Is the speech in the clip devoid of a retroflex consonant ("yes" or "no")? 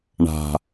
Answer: no